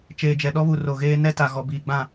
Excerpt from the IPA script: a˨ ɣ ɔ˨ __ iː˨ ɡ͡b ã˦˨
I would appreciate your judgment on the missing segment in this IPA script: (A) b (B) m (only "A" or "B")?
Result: A